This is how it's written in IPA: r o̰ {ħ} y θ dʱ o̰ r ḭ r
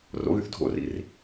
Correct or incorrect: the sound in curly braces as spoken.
incorrect: ɣ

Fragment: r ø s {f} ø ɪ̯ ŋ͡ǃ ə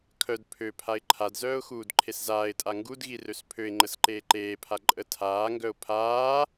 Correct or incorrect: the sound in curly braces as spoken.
incorrect: pʰ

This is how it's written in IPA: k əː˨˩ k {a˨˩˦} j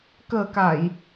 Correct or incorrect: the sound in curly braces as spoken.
incorrect: a˨˩˨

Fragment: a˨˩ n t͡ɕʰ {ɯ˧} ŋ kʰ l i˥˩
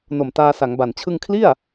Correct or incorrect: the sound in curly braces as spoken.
correct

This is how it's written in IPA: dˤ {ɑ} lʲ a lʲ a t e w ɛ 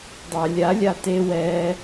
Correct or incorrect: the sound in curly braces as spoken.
correct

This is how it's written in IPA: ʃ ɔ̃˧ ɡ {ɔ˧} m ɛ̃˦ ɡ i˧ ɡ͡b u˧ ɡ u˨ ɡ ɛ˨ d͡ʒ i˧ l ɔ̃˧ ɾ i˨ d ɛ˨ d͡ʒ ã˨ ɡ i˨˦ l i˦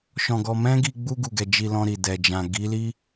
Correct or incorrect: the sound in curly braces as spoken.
correct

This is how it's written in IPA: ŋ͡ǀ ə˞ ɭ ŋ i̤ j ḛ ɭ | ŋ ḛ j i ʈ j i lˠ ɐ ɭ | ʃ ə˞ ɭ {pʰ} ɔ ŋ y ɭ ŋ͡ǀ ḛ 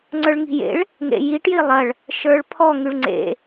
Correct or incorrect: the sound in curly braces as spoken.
correct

